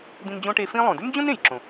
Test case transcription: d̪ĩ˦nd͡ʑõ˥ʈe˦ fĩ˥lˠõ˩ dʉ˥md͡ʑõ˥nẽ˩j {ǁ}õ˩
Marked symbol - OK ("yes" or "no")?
yes